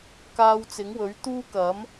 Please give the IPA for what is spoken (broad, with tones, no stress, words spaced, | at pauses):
kaː˧wt͡sɪ˨˥ŋwɵ˨˥ɥ t̪uː˥kɐ˨˥m